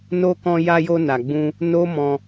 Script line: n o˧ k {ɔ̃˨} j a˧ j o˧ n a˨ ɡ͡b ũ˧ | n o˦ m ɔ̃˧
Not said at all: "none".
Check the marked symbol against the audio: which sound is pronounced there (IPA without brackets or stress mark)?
ɔ̃˧